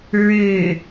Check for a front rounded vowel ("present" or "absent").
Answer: present